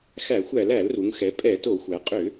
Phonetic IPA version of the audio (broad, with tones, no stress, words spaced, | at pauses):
xæ˧˩˧xʷæ˧˩˧l æ˧˩˧lru˩˧ŋxɛ˩˧ pʼɛ˧˩˧to˧˩˧xʷæ˩˧ qʼʏ˧˩˧